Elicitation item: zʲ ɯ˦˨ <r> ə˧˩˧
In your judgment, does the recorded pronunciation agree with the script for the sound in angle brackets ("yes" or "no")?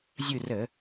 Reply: yes